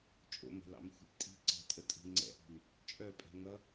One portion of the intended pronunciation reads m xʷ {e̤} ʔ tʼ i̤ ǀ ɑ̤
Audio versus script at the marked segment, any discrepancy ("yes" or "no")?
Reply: yes